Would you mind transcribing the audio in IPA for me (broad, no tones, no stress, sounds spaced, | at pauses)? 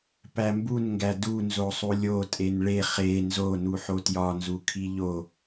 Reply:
p æ m b u n ŋ ɡ æ d u n z o sˤ u lʲ o tʼ e n ɭ e χ e n z o n u ħ o t j ɒ n z u kʰ i ʎ o